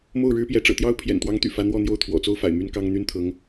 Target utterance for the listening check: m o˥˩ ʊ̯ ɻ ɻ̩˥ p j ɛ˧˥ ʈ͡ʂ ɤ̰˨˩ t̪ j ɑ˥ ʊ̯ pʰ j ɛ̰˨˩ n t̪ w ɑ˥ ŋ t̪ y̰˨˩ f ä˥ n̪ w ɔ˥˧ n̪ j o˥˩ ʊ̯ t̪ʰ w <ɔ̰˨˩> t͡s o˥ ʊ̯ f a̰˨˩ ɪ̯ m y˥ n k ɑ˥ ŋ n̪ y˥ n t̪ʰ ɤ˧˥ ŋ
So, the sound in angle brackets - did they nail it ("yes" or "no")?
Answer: yes